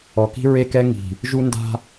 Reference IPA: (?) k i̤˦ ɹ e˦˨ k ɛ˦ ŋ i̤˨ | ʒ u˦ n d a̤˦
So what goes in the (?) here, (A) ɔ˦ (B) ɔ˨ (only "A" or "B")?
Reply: B